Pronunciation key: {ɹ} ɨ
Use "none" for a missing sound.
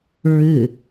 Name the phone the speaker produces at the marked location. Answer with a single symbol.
ɹ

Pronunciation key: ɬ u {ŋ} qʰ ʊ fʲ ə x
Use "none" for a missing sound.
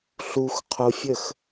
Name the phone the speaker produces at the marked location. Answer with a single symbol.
x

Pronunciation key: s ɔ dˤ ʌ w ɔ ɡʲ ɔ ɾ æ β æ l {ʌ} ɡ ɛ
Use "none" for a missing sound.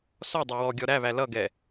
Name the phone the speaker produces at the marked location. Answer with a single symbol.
ʌ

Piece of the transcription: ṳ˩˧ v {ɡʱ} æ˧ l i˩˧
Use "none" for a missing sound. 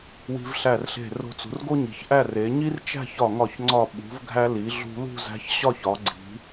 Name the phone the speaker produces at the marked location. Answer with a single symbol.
ɡʱ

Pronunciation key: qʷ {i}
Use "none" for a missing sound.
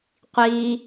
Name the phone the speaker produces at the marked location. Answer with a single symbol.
i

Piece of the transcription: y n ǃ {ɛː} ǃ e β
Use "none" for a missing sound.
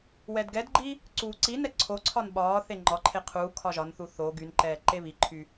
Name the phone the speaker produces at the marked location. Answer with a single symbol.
ɛː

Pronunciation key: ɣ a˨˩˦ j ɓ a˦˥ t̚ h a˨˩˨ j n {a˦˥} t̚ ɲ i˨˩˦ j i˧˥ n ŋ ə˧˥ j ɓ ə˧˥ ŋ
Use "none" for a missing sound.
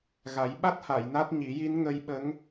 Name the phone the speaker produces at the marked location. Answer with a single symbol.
a˦˥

